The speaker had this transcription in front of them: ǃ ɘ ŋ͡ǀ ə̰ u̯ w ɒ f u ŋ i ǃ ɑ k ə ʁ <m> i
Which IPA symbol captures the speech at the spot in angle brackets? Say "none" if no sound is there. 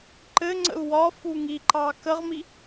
m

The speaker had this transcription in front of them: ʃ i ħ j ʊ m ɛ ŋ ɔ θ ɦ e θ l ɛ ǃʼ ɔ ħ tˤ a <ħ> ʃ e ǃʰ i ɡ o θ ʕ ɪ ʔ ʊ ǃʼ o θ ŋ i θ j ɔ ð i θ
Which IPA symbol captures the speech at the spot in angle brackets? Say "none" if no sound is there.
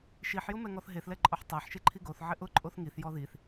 ħ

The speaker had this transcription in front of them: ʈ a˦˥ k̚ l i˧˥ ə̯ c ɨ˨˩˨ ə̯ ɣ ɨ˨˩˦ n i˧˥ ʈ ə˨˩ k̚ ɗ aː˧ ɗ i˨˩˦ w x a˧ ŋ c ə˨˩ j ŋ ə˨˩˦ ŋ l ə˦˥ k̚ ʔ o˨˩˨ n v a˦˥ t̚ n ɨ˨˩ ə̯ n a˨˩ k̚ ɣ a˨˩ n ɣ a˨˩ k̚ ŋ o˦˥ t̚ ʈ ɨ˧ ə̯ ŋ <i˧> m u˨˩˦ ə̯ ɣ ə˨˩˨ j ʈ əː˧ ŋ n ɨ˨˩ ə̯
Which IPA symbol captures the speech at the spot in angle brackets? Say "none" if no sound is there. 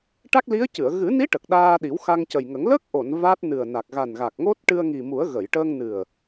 i˨˩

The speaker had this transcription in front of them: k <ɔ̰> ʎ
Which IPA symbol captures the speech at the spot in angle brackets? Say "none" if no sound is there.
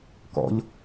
ɔ̰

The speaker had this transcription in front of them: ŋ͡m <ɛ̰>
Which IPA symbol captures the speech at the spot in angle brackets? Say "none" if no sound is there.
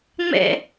ɛ̰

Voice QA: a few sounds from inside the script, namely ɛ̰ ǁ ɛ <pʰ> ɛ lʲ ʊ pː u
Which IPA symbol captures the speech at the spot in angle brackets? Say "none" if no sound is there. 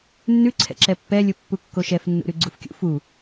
pː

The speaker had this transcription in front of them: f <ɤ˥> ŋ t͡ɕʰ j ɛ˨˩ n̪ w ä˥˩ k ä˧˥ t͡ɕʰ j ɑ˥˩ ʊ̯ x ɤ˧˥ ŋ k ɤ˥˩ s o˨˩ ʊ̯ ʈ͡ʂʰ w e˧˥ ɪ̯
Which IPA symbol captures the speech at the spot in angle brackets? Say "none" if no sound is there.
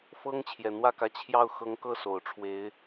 ɤ˥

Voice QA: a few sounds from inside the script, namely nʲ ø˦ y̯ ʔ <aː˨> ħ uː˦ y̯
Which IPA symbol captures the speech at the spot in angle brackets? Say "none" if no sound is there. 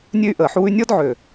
əː˨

